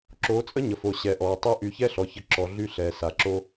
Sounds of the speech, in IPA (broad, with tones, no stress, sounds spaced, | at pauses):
ǁ oː˨˦ t͡sʼ ə˦ ɲ ə˨ f o˨ ɕ ɛ˨ ʔ ɔː˨ tˤ əː˦ ʔ y˨ ç ɛ˦ ɬ ɔ˨ ç ə˨ ǁ ɔ˨ ɮ y˦ ɬ ɛː˨ s a˨ ǁ o˦